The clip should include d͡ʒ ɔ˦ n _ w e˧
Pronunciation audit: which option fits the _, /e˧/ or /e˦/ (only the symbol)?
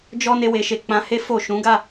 e˦